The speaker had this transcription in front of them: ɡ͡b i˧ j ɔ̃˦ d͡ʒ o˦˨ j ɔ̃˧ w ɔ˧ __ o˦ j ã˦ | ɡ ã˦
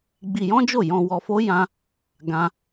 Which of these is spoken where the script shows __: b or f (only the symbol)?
f